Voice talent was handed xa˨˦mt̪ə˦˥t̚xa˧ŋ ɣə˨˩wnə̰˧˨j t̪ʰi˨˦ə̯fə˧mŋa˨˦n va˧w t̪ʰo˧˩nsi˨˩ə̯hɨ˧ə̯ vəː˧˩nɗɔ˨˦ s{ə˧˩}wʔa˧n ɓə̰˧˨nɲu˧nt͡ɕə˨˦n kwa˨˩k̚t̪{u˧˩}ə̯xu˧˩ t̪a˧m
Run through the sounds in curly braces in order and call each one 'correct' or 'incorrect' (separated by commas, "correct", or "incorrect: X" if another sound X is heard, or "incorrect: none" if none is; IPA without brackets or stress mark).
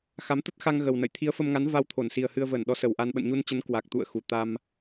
incorrect: ə˨˩, incorrect: ṵ˧˨